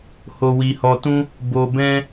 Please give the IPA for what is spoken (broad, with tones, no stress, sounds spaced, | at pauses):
h o˧ w i˧ h ɔ˧ t ũ˦ | b o˧ b ɛ̃˦